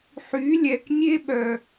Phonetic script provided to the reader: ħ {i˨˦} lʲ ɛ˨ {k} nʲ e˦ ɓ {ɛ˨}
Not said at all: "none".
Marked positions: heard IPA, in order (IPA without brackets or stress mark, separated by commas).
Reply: y˨˦, k, œ˨